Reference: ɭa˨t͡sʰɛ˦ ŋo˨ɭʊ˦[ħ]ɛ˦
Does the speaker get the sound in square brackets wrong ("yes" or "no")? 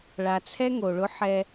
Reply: no